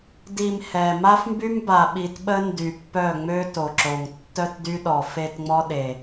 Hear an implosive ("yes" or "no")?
yes